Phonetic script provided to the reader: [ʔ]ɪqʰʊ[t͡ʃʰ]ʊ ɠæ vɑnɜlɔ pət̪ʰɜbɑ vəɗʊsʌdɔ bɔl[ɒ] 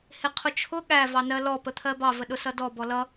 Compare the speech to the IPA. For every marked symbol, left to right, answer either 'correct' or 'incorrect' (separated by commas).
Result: incorrect, correct, incorrect